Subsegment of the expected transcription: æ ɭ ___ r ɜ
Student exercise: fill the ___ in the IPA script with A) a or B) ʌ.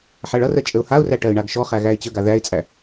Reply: B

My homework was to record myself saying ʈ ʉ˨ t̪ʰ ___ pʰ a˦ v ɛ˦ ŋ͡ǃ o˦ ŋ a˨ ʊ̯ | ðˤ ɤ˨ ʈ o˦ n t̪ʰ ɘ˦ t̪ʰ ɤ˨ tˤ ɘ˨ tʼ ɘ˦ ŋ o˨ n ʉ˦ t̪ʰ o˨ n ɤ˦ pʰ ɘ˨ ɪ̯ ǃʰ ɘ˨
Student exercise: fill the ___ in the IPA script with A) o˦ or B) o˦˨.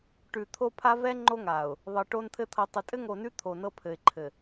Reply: A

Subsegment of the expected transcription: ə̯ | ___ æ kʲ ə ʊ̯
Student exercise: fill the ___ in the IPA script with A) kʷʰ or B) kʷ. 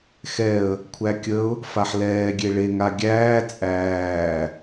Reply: A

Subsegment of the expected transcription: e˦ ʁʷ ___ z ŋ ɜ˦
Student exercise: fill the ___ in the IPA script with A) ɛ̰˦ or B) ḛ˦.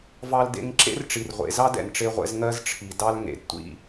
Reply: A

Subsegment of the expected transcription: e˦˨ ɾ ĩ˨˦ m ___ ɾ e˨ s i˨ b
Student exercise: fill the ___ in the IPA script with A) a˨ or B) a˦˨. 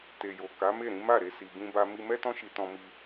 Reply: B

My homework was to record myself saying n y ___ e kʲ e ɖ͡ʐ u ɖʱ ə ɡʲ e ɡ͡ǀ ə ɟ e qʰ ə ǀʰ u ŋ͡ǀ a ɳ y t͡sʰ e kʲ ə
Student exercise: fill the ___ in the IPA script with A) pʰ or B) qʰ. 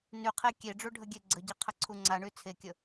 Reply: B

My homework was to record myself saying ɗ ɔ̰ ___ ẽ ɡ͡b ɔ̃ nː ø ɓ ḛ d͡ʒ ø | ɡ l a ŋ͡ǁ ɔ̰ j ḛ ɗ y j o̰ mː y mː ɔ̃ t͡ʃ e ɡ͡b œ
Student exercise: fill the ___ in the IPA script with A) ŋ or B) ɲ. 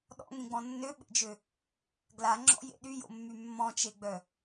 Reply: A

